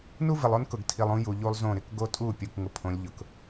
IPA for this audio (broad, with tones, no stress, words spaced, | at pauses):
nu˦vɪ˨lˠo˦n kʊ˨ɡtʰi˨lˠ ũ˦ju˨ ʎu˦lˠzõ˦˨ ɾɪ˨kɡo˦tʼu˦˨pʲu˨k ŋʊ˦pʰõ˨˦lʲ ʎʊ˨k